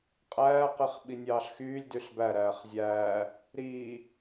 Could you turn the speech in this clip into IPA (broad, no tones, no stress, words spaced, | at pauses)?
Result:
qʼæːqiχ ɓinʲɑːɬxyːlʲdyɬ bæɾæːχ zʲæː | ɾiː